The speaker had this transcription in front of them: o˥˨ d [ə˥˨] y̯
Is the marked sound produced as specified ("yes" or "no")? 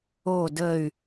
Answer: yes